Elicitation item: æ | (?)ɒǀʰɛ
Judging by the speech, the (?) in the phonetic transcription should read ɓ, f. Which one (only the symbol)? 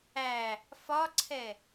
f